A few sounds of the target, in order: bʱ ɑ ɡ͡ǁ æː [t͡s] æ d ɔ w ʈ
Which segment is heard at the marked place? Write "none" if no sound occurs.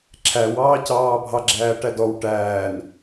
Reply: ʈ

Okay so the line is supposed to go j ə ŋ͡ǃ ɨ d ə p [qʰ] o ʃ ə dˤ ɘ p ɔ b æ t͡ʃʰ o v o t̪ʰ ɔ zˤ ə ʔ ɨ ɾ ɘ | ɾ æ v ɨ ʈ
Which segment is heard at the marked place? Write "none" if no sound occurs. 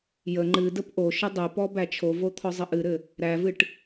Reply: ʔ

